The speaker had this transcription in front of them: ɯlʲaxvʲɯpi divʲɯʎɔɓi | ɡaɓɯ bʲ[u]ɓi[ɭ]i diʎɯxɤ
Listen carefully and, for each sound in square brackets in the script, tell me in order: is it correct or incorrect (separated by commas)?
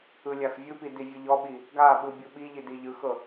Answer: incorrect, incorrect